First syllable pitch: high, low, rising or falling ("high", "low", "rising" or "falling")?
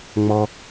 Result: high